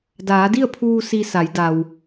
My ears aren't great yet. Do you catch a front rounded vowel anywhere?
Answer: no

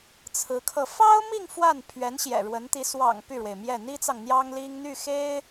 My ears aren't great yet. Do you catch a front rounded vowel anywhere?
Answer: yes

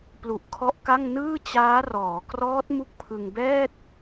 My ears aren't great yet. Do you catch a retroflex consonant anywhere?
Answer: no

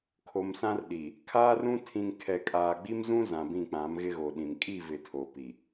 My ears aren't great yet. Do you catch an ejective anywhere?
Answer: yes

